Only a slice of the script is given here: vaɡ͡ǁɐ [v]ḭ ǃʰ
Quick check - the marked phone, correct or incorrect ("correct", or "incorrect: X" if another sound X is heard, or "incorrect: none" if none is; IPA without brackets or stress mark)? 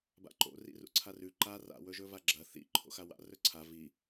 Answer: incorrect: θ